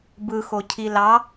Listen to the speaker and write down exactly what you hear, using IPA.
bɯxo cʰilɑ

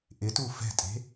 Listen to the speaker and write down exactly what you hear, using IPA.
ʔɪtu fɛ̤tʼe̤

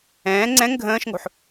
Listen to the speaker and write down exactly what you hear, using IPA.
ɛ̃ː ŋ͡ǀɛ̃ŋ ɡʱə̃ːʃŋo̤ħ

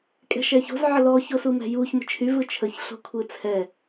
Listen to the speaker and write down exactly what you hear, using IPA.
kʼɛ̤ʃɛço̤z ʕəlɔ çosumɛ̤juç mə̤t͡ʃʰy vɯt͡ʃʰəç ɬo̤kʷʰɯt͡sʰɛ

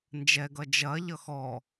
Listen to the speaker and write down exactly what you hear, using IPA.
nd͡ʒɛɡʌ d͡ʒɐːʎʌ xɔ

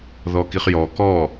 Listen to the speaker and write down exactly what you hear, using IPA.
ðɔkiχjɔ kɔ

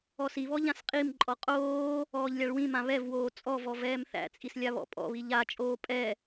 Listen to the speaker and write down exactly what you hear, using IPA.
ɔsiβɔ ʎãsqʼimǃʼɔ qʼoː | ɔːʎlʲaɭwĩmã βɛvwoː t͡sʼɔvɔ vɛːmθæ̰t͡sʼis lʲaβɔ̰pʼɔ̰βi ʎat͡ʃʼoː pʼɛ

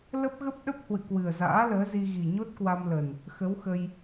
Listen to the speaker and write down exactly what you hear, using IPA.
lə˦˥p̚ɣə˦˥p̚ɗə˦˥p̚ hwɨ̰˧˨kwɨ˨˩ə̯za̰ː˧˥ ləː˨˦zi˧ ɣi˨˩ɲo˦˥t̚kwa˧mlə˨˩n | xə˨˦wxə˧j

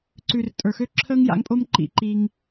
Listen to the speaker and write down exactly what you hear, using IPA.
ǀʉ˨rtʼə˞˨xø˦ ǁʰəː˦ŋja̰˨˦ŋpʼo˦m ǃḭ˧ǃiː˧ŋ

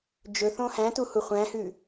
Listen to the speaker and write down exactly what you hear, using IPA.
d͡ʒɵθõ hæ̃tuhu χʷæ̃hʉ

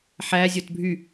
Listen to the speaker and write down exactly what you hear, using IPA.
ħæzʲot bʱy

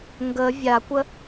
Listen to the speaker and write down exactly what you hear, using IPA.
ŋɡə vʲakʷə

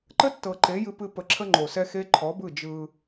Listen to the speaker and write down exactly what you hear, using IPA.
ǃə˦tːɤ˨ǃe˨˦ jɨ˦pɨ˦ pə˨ǁʰə˦ ŋ͡ǃo˨sɛ˦xe˦ ǃʰɔ˨˦bɯ˦˨ d͡ʒɯ˦

